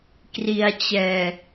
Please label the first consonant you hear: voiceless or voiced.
voiceless